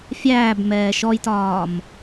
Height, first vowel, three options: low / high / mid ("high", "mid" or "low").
low